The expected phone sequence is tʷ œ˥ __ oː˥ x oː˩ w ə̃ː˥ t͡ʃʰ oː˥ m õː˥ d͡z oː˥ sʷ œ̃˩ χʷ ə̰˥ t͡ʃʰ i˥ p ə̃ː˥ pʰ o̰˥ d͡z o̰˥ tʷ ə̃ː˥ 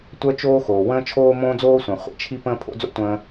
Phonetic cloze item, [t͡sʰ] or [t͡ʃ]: t͡ʃ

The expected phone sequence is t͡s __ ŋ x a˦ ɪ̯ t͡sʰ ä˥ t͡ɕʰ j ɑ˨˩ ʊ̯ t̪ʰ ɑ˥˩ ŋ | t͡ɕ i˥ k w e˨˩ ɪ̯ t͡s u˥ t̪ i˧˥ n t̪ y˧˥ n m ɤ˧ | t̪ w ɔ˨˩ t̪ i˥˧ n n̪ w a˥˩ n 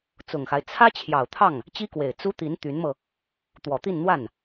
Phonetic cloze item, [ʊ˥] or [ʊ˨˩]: ʊ˨˩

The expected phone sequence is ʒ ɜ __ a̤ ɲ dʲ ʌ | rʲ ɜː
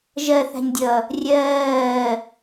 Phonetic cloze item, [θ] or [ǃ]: θ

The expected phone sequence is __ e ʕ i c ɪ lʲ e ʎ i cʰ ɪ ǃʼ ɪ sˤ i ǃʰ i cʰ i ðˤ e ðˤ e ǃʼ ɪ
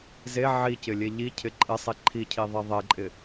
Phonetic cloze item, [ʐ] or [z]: z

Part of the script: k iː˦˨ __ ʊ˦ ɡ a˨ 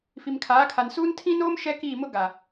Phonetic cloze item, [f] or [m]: m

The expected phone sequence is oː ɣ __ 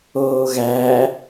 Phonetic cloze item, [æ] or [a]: æ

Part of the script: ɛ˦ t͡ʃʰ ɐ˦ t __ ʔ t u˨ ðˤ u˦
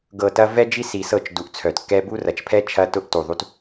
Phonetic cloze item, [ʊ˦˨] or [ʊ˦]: ʊ˦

